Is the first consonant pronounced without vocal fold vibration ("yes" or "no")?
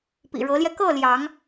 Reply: yes